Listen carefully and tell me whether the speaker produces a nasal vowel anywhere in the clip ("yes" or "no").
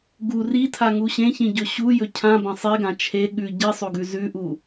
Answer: yes